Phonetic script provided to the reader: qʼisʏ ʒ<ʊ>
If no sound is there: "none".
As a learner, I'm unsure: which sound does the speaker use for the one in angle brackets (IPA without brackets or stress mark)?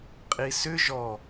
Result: ɔ